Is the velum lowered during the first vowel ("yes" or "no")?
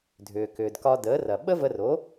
no